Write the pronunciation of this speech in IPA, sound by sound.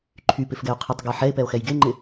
ǃʰ y p ɪ f ɡ ɛ o̯ qʰ ɪ tˤ ɡ ɛ ħ ɛ e̯ p ɛ o̯ x ɛ j ɡ e ŋ͡ǃ ɪ

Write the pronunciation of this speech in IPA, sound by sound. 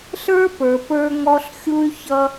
ɬ ə˞˦ p ə˞˨ p ə˞˦ ŋ ɔ˦ ɬ xʲ u˦ y̯ ç ʌ˦

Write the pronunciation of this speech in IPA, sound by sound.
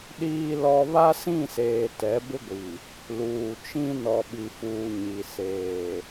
ɗ iː˨ l ɔ˨ β a˦ s ĩ˦˨ s eː˨ t ɛ˨˦ b ɪ˦ ɡʷ i˨ | l uː˨ t͡ʃ ĩ˦ n ɔ˨ ɓ i˨ f uː˨ ɲ i˨ s eː˨

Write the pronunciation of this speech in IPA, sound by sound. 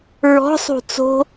ɹ ɔ̤ sˤ ṳ t͡s o̤

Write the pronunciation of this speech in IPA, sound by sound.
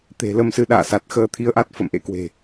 t̪ e̤˨˩ l ə˧ m s ɨ˨˦ ɗ a̰ː˧˨ s a˨˩ t̚ x əː˧ t̪ʰ i˧ ə̯ ʔ a˦˥ t̚ f ə̰˧˨ m ʔ ḛ˧˥ k w e̤˨˩

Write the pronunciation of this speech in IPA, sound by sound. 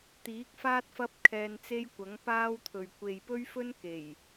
t̪ iː˨˥ k̚ f aː˥ t̚ f ɐ˥ p̚ kʰ ɛː˧ n t͡s e˥ j kʷ ɐ˨˥ ŋ p aː˥ w t̪ʰ ɵ˨ ɥ kʷ e˨ j p ɵ˥ ɥ f ɵ˥ n k e˨˩ j

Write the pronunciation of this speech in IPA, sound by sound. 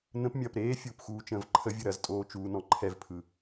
n ə̃ p mʲ ɐː p ɾ eː fʲ uː p x uː t͡ʃ ə̃ː v ǃʰ ə vʲ ɯ ɾ ɐ z tʼ oː t͡ʃ uː n ɔ̃ ǃʰ ɛ v pʰ ɯ

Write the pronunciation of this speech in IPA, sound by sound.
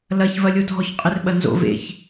l ɐ ç v ɐ lʲ o dʱ ɔ ç qʼ ɪ r ɓ ɐ n z o̰ v ḛ ç

